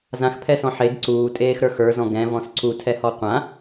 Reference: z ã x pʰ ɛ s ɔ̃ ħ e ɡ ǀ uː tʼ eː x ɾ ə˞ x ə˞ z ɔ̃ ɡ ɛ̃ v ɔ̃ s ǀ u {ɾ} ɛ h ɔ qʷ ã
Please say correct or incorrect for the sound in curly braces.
incorrect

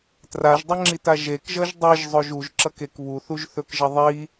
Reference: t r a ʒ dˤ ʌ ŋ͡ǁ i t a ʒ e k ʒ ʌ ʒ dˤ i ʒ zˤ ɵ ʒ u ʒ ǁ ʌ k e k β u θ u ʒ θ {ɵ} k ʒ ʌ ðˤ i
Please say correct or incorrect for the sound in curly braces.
correct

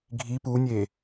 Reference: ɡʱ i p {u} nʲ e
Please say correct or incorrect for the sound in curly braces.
correct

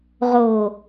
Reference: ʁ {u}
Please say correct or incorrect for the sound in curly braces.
incorrect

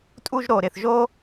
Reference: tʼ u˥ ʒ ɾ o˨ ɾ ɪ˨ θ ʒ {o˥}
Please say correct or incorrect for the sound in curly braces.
correct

